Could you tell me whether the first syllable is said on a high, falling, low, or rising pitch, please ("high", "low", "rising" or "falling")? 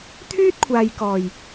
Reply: high